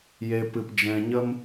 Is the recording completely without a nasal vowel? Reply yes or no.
no